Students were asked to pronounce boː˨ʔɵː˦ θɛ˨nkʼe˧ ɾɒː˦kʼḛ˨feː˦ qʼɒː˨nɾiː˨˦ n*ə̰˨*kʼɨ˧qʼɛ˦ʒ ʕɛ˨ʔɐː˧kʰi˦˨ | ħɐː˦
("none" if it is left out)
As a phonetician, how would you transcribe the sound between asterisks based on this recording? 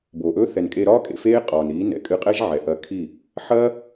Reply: ɛ̰˨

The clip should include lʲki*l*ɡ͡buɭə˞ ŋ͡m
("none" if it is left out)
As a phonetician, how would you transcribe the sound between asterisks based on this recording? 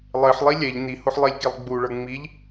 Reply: lˠ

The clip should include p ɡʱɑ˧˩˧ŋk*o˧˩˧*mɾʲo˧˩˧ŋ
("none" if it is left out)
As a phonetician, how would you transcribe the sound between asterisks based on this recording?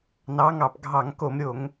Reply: o˧˩˧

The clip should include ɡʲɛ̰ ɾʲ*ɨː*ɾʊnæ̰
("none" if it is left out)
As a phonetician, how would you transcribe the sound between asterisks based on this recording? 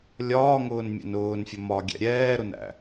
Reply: ɛː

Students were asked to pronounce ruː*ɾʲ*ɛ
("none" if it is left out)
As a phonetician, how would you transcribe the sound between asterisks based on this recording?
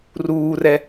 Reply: r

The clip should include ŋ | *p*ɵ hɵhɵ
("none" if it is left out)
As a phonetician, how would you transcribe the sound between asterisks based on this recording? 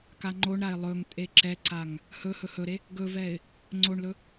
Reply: h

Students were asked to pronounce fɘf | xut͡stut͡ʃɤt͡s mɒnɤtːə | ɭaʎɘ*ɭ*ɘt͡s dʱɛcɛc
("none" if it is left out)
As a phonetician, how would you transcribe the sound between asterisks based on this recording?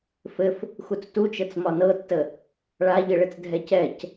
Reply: ɭ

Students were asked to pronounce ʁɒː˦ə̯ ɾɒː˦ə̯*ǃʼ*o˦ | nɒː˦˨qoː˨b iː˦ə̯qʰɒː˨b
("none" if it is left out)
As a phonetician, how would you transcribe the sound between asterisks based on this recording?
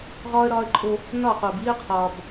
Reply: ǃʼ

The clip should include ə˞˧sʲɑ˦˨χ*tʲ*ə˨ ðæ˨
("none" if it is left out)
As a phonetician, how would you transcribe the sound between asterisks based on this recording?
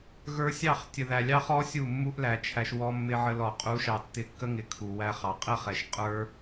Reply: tʲ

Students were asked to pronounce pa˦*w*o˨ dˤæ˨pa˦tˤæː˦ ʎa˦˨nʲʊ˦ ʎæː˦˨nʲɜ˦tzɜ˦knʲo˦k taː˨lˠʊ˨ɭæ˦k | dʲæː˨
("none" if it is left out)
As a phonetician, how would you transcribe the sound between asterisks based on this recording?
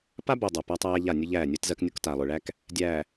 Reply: b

